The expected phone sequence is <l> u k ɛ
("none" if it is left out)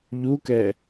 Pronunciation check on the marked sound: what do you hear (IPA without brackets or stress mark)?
ʎ